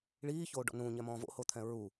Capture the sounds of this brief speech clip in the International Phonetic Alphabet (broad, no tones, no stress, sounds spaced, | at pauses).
ɭ iː ç oː ɖ ɔ̰ n ũ ɲ ɛ m ɔ̃ː v o̰ h o t̪ʰ ɛ̃ ɹ u